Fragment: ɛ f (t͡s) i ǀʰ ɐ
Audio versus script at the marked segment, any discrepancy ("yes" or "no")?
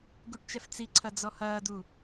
no